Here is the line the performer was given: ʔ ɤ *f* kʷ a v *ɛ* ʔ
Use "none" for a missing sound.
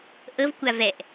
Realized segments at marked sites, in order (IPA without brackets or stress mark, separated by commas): v, ɛ